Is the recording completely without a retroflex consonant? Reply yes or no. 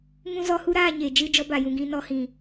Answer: yes